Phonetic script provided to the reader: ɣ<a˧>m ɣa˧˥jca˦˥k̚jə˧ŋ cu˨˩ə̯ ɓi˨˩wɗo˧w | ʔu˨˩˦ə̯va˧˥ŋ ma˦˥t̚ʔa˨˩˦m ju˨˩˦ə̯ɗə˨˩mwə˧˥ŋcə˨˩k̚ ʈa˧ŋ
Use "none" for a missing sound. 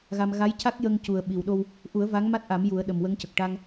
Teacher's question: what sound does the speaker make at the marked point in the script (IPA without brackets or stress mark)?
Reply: a˧